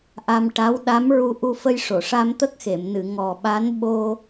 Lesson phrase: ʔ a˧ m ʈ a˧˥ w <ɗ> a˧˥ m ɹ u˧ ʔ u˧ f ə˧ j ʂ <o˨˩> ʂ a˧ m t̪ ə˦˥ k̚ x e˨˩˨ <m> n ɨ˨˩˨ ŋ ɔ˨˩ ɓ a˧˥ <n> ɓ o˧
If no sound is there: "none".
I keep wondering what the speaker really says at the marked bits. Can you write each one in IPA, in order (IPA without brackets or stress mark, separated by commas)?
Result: ɗ, o˨˩˨, m, n